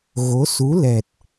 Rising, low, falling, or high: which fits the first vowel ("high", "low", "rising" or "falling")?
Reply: rising